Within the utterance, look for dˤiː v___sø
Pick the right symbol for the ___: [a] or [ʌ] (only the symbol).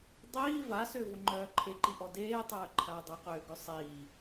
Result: a